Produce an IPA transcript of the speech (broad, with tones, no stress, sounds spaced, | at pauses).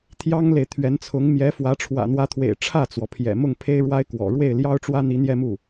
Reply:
t̪ʰ j ɑ˥ ŋ l e˨ ɪ̯ t̪ʰ ɥ ɛ˧˥ n t͡sʰ ʊ˧˥ ŋ m j ɛ˧˥ f w ä˧˥ ʈ͡ʂʰ w ä̰˨˩ n̪ w ä˧˥ t̪ʰ w ḛ˨˩ ɪ̯ ʈ͡ʂʰ ä˥˩ t͡s w ɔ˩ pʰ j ɛ̰˨˩ m ʊ˥˩ ŋ pʰ e˥ ɪ̯ ɻ w a˥ ɪ̯ k w ɔ̰˨˩ ɻ w e˥˩ ɪ̯ l j ɑ˥ ʊ̯ ʈ͡ʂ w ä˥ n̪ i˧˥ n̪ j ɛ˥˧ m u˥˩